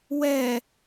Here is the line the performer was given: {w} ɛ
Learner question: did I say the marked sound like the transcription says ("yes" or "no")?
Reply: yes